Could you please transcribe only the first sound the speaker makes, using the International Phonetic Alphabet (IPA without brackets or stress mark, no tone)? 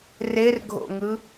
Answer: r